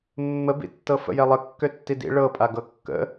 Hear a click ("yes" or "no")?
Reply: no